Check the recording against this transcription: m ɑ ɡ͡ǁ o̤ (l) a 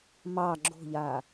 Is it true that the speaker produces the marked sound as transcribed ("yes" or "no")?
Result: no